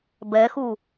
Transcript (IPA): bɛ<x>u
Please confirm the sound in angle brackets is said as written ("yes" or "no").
yes